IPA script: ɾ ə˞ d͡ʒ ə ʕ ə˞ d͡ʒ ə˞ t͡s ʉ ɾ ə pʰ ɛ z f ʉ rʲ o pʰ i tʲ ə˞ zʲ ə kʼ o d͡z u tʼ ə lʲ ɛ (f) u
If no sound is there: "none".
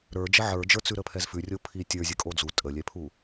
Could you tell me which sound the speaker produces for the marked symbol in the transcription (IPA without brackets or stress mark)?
pʰ